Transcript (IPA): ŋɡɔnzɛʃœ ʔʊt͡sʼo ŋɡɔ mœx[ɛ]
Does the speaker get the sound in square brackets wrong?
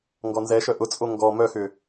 yes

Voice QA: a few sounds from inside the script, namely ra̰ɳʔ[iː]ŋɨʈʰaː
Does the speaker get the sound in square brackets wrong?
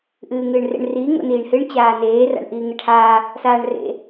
no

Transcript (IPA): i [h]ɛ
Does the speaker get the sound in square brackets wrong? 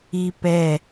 yes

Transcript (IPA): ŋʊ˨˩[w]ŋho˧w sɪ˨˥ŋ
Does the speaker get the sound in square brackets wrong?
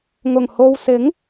yes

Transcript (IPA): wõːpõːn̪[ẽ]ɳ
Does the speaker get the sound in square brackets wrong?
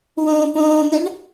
yes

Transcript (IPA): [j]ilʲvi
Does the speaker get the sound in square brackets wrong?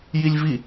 no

